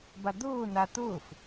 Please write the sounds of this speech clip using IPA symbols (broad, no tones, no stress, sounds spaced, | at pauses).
b a d̪ ʊː n a t̪ ʊː f